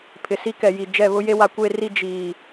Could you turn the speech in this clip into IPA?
pʰɪ˨si˦kɛ˨ji˨ d͡ʒɛ˦˨βʊ˦je˦ wa˦kʷe˦ri˦ d͡ʒiː˨

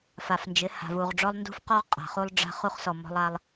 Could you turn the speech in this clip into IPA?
fa˨fnd͡ʒɪ˨˦ ha̤˨vu˨ʁɖ͡ʐɔ˦lˠ ndṳ˦fqɔ˦ʁ qʼa̤˨χu˦lˠ ɖ͡ʐa̤˦χ u˦χsɔ˨ mɔ̤˦lˠa˦lˠ

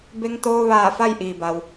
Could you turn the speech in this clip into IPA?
be˧ŋt̪oː˧ ʋaː˧˩ fa˥˨jʔiː˩ba˩w

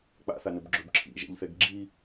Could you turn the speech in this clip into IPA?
k͡pa̰θanɵb ɡ͡ǁɵb ǁʰḭʒɛ̰ʎθɛɡ ɡ͡ǁi

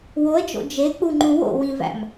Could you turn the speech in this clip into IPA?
woə̯d͡ʒo̰ d͡ʒek͡puŋ͡ǃũ wo̰wĩvæ̰m

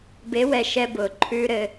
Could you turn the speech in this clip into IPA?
be˨˦wɛ˨ ʃɛ˦ bʊː˨ǃʰʉː˦ɾɘ˦

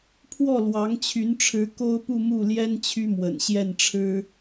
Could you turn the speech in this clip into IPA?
pʰwɔ˥˩lwɑ˧˥ŋt͡ɕʰy˧˥nʈ͡ʂʰɻ̩˧˥ ko˥ʊ̯pu˥˧mu˥˩ljɛ˥n t͡ɕʰy˥mwə̰˨˩nɕjɛ˥˩nʈ͡ʂʰɻ̩˥

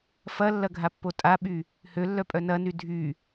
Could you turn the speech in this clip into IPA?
fɐlːɐɡʱapːo tʼaɓy | hølːœpʼœ nɐny dʱy

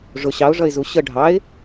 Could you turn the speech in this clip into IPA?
ʐʊ ɕɑʊ̯ʐʌɪ̯zu ɕə ɖʱɑɪ̯

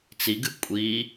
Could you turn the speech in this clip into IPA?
t͡siɡɨ kʷʼi

